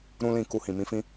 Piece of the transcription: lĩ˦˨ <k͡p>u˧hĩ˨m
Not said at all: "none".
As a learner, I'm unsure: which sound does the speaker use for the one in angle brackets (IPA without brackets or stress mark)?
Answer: k